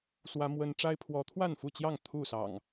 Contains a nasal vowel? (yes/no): no